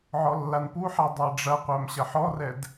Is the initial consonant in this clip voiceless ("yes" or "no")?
no